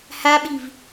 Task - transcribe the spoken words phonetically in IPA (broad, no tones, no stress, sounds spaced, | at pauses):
h a ɓ i v